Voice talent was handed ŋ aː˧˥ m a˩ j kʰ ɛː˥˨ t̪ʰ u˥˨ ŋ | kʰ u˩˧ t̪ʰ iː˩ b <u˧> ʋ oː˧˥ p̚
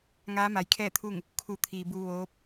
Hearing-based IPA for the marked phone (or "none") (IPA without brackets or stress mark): u˧